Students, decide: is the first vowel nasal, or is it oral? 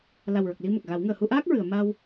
oral